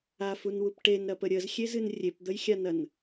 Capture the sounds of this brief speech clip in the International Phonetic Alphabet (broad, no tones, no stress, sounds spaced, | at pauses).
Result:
a f u n w u p ʈ e n ɾ ɐ p ə ɾʲ ə z xʲ e z ɨ n rʲ e p d̪ ə j xʲ a n ɐ n